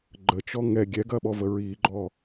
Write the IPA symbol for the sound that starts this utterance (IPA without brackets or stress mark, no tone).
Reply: ɡ͡ǃ